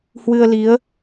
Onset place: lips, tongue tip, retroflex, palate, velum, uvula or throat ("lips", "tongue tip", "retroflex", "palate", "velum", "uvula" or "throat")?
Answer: throat